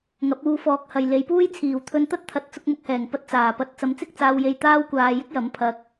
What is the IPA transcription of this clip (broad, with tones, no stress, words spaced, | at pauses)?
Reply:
ŋɐ˨˥p̚uː˧fɔː˨˥k̚hɐ˨j le˨˧jpuː˥jt͡sʰiː˨w t̪ʰɵ˧nt̪ɐ˥t̚t̪ʰɐ˨˥t̚ t͡sʊ˧k̚mʊ˨k̚hɛː˨˩ŋpɐ˧t̚ t͡saː˨˩pɐ˨˥t̚ t͡sɐ˨˥mt͡sɪ˥k̚t͡saː˧wje˧j t̪aː˥wkʷaː˧jɪ˥k̚jɐ˨˥m pʰɐ˧k̚